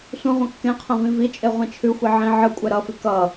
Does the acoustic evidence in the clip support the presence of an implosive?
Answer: no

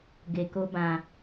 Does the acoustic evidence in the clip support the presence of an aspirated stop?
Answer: no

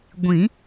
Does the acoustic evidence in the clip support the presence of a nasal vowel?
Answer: yes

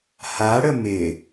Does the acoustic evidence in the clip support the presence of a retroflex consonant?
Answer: yes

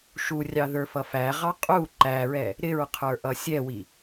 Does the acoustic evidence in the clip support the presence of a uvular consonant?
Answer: yes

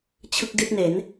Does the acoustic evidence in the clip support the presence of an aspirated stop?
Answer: yes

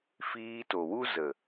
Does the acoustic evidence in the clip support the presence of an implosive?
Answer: no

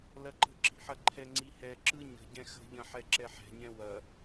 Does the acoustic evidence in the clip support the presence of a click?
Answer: yes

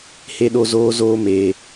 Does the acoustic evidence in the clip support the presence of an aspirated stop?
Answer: no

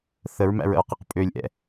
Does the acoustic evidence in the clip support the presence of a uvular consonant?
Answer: yes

